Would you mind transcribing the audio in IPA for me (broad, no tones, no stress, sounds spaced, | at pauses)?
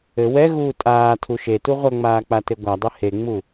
ɘ w ɛ ɣ uː tʼ aː tʰ u ʃ e t u ʁʷ ɐ ŋ͡m aː k͡p a t e ɡʷ a dˤ ɘ h e ŋ͡m u